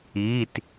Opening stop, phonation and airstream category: plain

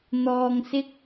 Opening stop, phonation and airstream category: plain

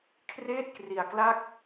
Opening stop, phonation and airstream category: aspirated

